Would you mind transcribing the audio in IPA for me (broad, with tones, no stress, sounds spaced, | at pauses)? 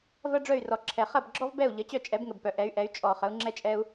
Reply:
v ɐ˥ ɖ͡ʐ œ˥˩ y̯ r ɔ˩ ǁʰ ɛ˩ χ ɐ˥˩ b ɡ͡ǁ ɔ˥ v b ɛ˥˩ u̯ ʎ ə˩˥ t͡ɕ œ˥˩ t͡ʃʼ ɛ˩˥ b ŋ ə˩ b p œ˩ ʔ ɛ˩˥ y̯ ʔ ɛ˩˥ y̯ t͡ʃʼ ɔ˩ χ ə˩˥ u̯ ŋ͡ǁ ɛ˥ t͡ʃʼ ɛ˥ u̯